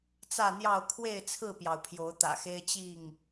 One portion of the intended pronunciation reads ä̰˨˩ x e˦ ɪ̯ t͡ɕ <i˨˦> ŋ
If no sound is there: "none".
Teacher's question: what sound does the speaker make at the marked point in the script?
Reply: i˥˨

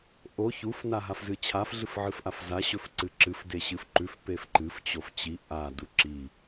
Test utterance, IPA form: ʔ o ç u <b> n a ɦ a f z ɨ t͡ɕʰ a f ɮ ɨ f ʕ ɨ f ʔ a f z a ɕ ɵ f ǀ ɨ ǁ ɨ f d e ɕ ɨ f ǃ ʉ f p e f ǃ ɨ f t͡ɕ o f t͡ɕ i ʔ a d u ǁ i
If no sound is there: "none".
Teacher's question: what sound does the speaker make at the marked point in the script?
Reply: f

